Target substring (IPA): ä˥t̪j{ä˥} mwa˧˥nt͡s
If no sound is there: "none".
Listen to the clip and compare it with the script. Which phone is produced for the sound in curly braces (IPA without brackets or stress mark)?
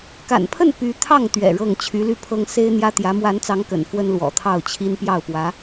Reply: ä˧˥